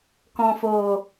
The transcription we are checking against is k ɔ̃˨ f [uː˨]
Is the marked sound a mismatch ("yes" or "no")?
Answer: yes